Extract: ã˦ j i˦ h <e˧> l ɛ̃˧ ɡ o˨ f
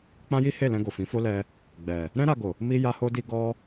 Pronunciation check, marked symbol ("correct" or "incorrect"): incorrect